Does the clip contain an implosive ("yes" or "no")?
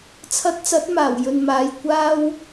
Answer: no